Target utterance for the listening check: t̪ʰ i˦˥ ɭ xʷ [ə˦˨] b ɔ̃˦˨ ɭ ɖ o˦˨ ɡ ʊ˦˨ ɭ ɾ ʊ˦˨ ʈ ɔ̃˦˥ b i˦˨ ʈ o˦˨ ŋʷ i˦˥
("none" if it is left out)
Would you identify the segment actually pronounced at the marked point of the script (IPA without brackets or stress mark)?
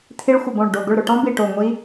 ə˦˨